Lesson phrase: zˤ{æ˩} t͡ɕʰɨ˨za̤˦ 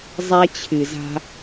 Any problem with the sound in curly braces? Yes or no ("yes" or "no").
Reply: yes